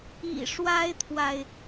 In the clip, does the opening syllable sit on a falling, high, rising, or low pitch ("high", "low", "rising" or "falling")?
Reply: low